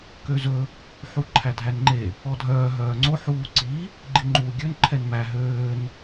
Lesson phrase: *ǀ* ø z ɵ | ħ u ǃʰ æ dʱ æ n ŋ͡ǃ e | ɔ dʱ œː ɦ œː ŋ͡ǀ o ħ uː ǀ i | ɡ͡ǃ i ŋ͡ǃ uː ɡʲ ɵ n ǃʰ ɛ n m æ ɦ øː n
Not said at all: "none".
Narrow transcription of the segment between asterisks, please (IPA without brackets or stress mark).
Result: k